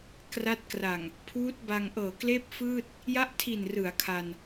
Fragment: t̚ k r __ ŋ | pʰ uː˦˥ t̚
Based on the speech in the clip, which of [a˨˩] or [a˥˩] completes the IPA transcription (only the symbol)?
a˨˩